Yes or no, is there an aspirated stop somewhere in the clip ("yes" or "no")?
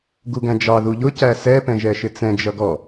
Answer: no